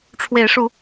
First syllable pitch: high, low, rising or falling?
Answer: rising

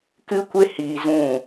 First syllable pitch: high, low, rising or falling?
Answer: high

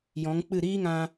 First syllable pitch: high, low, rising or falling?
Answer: rising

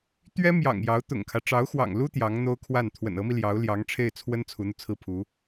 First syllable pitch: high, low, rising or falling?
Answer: high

